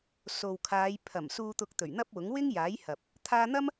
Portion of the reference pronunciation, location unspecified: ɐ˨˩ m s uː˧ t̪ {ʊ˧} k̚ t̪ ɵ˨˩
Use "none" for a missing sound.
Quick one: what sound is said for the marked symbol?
ʊ˧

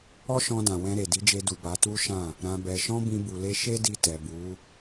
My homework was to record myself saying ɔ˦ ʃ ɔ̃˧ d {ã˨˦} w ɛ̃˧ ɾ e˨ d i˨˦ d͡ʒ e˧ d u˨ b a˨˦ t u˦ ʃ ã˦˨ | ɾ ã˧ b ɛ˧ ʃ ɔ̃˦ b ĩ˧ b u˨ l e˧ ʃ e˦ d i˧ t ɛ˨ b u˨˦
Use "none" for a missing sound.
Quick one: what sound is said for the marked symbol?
ã˨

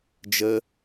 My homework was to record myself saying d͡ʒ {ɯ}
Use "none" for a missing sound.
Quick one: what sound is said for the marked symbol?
ə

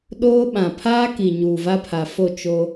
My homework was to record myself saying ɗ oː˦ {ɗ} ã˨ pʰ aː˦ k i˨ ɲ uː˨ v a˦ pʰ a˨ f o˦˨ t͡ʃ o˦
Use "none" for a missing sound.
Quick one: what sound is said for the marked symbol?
ɓ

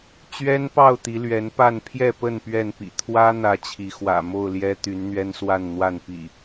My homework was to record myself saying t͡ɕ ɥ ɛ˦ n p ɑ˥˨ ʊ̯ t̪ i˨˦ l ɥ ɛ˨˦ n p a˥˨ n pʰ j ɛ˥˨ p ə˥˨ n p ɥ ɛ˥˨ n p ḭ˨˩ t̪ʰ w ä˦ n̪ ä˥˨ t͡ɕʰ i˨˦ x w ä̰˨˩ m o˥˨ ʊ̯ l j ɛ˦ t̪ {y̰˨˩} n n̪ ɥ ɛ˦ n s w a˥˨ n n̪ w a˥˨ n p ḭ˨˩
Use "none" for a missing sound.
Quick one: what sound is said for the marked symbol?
y˨˦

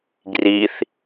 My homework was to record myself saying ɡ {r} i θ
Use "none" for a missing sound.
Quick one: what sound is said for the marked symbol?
r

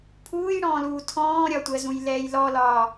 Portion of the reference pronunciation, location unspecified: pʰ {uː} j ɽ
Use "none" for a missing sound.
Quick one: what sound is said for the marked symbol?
uː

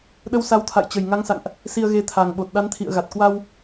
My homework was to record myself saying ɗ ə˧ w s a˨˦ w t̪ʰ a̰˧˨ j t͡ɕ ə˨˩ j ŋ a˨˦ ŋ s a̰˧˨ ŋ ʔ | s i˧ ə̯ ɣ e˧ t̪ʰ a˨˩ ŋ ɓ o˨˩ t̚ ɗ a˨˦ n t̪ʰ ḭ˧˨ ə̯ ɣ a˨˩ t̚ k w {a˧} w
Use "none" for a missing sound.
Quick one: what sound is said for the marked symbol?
a˧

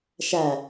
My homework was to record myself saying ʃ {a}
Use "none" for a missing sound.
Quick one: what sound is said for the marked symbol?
æ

